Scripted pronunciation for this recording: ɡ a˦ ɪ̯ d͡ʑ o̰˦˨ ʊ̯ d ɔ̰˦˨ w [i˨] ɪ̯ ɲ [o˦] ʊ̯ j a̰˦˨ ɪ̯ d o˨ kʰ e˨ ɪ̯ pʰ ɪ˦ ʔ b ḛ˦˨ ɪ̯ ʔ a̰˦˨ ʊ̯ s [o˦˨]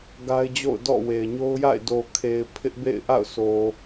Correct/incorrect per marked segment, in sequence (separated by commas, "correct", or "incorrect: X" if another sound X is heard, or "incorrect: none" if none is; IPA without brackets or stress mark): incorrect: e˨, correct, incorrect: o˨